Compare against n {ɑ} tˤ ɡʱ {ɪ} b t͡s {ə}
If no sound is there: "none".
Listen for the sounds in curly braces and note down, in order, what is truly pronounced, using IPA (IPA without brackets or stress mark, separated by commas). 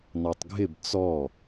ɑ, ɪ, ɔ